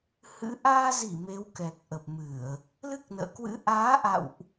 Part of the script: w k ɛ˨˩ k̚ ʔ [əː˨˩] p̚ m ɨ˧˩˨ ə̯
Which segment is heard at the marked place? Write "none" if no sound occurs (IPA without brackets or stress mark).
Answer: ə˨˩